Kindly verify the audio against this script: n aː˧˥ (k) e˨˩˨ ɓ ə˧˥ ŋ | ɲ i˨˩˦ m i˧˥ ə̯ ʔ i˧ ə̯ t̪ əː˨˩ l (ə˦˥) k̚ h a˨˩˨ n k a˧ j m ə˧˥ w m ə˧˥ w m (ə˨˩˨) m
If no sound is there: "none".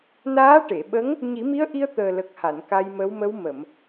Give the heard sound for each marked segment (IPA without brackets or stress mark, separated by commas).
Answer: ʈ, ə˨˩, ə˨˩˨